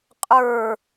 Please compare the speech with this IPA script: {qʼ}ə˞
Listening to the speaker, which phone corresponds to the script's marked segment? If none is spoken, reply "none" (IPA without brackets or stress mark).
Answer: qʼ